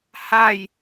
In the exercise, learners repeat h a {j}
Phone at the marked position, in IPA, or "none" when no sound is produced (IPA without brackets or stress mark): j